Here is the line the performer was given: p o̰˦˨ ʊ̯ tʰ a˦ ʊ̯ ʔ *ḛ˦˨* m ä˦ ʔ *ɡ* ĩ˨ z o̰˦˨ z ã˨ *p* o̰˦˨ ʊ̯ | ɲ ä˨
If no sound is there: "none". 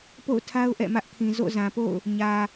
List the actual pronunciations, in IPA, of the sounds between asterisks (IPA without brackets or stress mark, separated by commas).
ɛ̰˦˨, kʰ, p